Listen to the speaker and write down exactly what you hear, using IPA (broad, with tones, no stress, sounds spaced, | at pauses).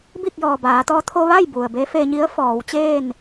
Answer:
b i˥˨ k̚ j ɔː˩ b aː˩˧ t̪ ɔː˧˥ t̪ʰ o˧ ʋ a˥˨ j b u˩ ə̯ b e˧˥ f eː˧ ɲ i˧˥ ə̯ f ɔː˩˧ w t͡ɕ eː˥˨ n